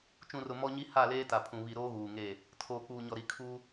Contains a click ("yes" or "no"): no